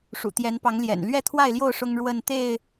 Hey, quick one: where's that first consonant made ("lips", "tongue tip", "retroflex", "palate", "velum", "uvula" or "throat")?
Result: retroflex